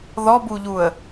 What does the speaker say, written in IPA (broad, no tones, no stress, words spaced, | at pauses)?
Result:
ðɔbuʎuə̯